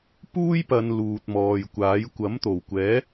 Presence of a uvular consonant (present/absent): absent